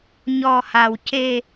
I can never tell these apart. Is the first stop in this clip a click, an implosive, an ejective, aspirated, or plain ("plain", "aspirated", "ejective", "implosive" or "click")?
plain